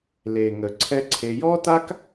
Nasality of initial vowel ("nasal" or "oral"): oral